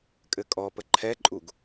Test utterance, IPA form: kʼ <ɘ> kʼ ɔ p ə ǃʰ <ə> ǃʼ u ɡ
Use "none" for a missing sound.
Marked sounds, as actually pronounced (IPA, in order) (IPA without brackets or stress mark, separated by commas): ɘ, ɛ